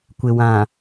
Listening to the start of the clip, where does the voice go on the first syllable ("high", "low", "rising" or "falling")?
low